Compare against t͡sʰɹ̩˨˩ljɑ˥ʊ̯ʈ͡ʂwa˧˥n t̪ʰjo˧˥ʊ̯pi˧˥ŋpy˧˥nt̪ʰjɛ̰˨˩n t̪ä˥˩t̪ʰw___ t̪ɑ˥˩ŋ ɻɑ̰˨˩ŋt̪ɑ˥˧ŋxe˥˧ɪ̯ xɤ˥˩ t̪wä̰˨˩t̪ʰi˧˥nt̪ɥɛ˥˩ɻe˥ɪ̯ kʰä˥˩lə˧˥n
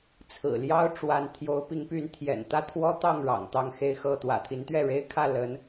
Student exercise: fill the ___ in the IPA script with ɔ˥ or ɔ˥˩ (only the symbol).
ɔ˥